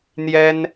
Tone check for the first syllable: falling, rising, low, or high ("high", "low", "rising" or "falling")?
high